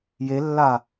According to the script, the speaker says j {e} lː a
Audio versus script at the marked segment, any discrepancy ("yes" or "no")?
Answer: no